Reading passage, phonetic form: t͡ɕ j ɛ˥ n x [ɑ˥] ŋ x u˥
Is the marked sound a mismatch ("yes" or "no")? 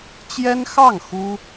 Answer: yes